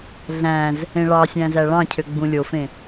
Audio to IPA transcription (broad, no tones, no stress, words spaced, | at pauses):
ɮæ̃z | ẽɭɑsʲæ̃ zæɭɑ̃cʰø ɡ͡bũlʲofẽ